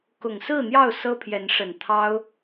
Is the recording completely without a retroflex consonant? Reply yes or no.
no